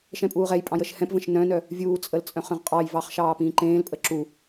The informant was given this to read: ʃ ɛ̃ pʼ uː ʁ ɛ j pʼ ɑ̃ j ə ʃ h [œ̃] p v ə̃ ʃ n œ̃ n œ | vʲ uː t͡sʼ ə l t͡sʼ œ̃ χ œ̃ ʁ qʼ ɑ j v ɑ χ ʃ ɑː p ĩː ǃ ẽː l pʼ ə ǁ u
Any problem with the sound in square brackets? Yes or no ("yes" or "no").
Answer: yes